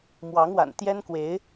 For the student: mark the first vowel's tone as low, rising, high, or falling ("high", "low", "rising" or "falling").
rising